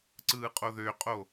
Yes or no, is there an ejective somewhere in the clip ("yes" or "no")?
yes